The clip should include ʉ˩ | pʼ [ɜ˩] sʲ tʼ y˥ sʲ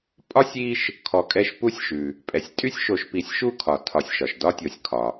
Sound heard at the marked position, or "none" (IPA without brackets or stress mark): ɛ˩